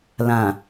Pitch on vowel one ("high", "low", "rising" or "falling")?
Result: low